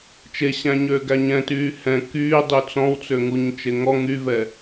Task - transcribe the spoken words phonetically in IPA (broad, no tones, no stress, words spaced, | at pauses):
t͡ʃeɕæ̃ɲøːɡæ ɲɛ̃tyː hɛ̃ kyːdˤy t͡sɔ̃wt͡søŋuɲt͡ʃe ŋɔ ŋyvɛ